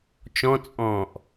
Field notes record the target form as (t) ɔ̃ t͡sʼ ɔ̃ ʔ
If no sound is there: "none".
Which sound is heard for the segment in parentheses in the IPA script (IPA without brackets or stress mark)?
t͡ʃ